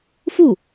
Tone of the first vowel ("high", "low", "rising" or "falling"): falling